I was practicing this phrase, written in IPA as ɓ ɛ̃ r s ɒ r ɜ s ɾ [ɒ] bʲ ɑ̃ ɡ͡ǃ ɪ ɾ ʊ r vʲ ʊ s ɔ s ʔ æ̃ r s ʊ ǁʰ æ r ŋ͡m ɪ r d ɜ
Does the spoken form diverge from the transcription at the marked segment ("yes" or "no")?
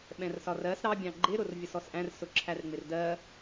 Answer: yes